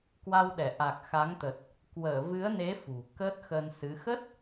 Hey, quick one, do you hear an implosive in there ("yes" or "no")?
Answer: yes